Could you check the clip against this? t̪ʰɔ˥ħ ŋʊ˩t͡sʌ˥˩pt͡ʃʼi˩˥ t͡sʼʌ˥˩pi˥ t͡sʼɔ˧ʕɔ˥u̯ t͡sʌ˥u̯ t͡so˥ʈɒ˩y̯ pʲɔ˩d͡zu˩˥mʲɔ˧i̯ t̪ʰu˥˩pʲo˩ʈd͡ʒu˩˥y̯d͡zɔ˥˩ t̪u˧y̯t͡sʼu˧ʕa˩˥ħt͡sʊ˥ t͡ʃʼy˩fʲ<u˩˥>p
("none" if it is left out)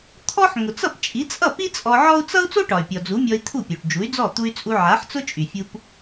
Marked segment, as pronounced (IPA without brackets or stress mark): u˧